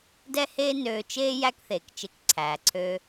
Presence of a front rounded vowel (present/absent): present